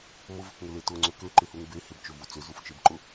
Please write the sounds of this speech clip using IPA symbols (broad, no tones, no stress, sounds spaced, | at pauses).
m ʊ v ɪ k ŋ ʏ l e t ʊ ŋ͡ǀ ʏ k ø ǃ ɪ h u ŋ b e h ɪ b t͡ʃ ø v u t͡s ʏ z u f t͡ʃ e b ǃ ʊ